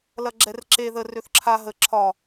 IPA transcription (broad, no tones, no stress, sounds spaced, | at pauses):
l ɐ ɡ͡ǁ ɛ r ǁ e ð ə r ø θ ǁʰ a ɦ ə ǁʰ ɒ